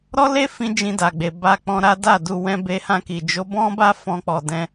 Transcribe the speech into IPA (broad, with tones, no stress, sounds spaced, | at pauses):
ɾ ɔ˦ l e˦ f ĩ˦ d͡ʒ ĩ˧ d a˨ ɡ͡b e˨ b a˧ k͡p ɔ̃˧ ɾ a˦ d a˦˨ d u˧ w ɛ̃˧ b e˧ h ã˧ k i˨ d͡ʒ o˨˦ b ɔ̃˦ b a˦ f ɔ̃˦ k͡p ɔ˧ d ɛ̃˧